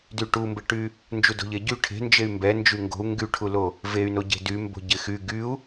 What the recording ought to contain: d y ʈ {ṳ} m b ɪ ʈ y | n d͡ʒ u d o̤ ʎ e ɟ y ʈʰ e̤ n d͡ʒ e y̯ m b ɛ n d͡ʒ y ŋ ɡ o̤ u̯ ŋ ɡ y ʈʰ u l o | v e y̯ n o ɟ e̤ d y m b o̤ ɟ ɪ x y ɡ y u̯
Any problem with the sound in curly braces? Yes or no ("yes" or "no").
yes